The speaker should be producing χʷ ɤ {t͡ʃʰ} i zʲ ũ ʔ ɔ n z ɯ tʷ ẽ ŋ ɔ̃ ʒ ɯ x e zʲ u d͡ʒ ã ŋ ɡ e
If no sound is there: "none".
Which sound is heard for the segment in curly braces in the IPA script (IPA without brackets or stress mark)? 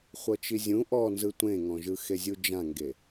t͡ʃ